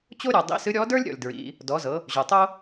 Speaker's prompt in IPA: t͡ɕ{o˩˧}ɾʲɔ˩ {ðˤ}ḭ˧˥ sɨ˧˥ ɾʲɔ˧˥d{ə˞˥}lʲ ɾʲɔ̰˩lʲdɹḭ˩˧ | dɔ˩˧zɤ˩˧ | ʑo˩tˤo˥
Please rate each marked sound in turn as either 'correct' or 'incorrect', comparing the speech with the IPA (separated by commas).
incorrect, incorrect, correct